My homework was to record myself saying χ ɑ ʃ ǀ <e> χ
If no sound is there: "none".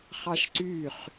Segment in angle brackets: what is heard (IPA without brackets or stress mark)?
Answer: y